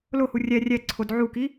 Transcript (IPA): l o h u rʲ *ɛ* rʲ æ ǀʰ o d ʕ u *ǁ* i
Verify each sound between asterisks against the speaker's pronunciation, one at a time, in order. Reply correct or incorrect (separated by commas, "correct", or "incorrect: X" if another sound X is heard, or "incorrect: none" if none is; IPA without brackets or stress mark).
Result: incorrect: æ, incorrect: k